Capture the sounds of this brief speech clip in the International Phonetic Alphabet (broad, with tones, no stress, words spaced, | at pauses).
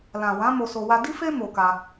lã˨wã˨˦ mo˧so˧ wa˧di˦fe˦ mo˧ka˧